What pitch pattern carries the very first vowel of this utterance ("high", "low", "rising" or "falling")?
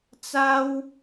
high